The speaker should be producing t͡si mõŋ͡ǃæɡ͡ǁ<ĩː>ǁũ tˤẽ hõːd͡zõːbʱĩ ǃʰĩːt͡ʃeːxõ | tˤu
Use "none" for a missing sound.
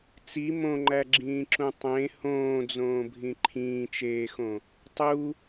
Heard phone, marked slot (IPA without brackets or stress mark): ĩː